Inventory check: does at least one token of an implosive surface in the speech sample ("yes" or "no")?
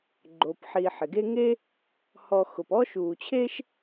no